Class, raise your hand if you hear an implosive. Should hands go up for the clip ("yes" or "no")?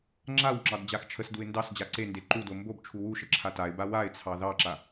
no